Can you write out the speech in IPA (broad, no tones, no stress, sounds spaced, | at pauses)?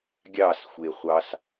ɡʲ ɑ s xʷ e χʷ ɑ s